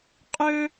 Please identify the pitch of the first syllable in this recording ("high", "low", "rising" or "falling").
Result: high